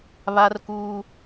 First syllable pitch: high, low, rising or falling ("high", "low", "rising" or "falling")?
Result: high